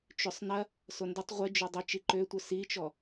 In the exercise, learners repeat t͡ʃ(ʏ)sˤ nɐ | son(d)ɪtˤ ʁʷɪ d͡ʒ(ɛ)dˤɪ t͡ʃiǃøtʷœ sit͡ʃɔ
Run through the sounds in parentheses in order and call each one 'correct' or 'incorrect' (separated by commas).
correct, correct, incorrect